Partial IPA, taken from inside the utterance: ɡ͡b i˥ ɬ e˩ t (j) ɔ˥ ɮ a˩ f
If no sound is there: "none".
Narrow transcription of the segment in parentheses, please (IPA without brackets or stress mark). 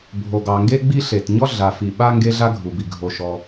ɲ